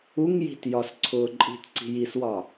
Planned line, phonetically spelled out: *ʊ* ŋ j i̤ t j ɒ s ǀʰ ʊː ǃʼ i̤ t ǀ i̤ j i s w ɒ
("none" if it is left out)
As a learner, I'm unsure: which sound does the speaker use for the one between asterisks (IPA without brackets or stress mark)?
u